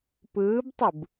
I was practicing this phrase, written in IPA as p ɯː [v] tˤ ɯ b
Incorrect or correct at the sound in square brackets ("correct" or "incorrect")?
incorrect